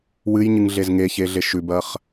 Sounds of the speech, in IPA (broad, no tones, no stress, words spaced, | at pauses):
wɨjɲɨŋɮez ŋeçeɮeʃ ʉbɐχ